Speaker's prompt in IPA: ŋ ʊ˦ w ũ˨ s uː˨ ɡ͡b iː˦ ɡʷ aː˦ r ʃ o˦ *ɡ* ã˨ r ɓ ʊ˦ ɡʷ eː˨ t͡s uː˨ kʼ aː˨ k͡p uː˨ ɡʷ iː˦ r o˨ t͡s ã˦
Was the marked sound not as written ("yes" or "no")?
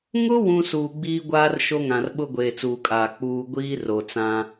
yes